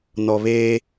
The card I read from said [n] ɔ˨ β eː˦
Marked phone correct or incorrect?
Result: correct